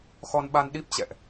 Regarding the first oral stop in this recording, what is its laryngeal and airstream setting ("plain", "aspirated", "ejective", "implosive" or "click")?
implosive